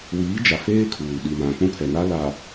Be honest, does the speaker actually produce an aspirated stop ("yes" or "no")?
yes